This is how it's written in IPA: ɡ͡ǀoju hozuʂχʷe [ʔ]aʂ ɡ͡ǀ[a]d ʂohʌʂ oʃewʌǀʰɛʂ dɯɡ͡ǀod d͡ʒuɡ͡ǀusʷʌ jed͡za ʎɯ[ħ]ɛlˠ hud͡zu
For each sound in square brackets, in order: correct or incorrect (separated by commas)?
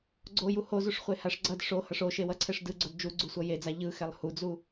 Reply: incorrect, incorrect, incorrect